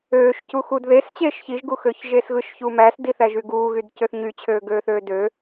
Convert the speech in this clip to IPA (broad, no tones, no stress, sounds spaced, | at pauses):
øː ʃ c u x u d ð e s t͡ɕ eː ʃ ç i ʒ ɡ u x øː ç ʒ eː s ɣ ɯ ʃ ç uː m æ s d i θ æ ʒ y ɡ uː ɣ y d c ø θ ɲ y t͡ɕʰ øː ɡ øː θ øː d ø